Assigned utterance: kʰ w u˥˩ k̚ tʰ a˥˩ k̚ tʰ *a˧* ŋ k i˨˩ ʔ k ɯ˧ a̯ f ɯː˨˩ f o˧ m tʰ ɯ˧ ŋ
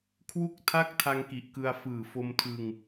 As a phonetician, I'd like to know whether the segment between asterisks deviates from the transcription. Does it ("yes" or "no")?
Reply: no